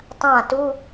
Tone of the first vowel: falling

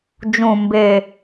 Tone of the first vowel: low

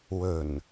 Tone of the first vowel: low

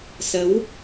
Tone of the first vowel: rising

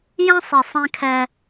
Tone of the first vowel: high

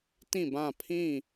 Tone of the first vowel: falling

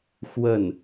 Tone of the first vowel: falling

